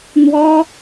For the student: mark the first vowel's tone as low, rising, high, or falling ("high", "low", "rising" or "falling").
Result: high